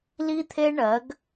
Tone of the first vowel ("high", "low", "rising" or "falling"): high